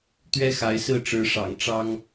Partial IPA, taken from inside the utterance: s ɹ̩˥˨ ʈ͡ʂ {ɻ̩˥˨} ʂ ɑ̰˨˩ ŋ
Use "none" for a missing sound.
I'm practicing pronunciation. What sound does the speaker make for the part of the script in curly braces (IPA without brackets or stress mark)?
ɻ̩˨˦